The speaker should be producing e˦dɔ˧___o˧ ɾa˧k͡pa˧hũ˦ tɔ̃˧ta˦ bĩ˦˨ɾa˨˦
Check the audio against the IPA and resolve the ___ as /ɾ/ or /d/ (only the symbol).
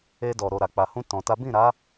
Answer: ɾ